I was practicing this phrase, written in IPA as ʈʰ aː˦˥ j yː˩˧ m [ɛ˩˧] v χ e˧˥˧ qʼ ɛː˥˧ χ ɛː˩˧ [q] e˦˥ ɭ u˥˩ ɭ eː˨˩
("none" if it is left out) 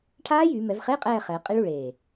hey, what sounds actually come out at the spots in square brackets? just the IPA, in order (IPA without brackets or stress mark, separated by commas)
ɛ˩˧, qʼ